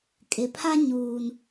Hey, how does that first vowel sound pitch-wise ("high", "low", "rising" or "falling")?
low